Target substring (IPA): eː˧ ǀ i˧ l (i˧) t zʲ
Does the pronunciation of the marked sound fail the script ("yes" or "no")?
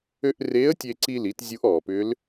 yes